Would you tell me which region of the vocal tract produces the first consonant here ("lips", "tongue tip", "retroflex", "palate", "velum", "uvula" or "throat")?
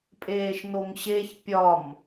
lips